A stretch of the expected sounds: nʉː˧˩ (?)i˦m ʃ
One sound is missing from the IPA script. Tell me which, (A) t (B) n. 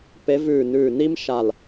B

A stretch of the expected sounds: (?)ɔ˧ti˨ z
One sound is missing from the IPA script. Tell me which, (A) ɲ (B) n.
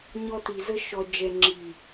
A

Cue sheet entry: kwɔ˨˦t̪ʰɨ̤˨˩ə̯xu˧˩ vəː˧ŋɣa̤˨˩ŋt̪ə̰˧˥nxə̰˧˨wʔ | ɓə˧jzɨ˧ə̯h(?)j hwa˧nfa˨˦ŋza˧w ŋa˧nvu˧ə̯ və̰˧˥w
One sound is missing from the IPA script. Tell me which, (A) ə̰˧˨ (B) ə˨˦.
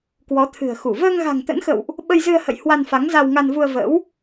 A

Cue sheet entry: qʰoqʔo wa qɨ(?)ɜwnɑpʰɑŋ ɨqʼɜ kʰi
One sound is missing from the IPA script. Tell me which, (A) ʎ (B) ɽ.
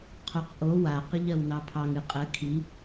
A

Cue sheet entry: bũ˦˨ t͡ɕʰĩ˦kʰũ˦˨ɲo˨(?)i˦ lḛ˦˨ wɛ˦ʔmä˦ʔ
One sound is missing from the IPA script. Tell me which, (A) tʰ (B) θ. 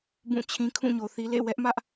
B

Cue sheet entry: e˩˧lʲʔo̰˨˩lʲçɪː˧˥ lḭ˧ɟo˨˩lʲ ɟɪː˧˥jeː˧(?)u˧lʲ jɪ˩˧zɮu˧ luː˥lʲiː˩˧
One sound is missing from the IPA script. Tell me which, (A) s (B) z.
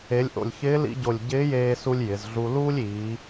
A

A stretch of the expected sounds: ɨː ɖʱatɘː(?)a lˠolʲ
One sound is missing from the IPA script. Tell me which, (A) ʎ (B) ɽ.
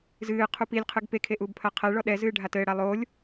B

